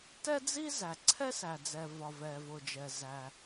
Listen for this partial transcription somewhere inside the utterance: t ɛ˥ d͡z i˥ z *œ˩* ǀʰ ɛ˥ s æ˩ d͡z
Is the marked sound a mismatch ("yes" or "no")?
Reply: yes